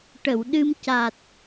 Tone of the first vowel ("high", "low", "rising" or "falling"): low